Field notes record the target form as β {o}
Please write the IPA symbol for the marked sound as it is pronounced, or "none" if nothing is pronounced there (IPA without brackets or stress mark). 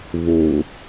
o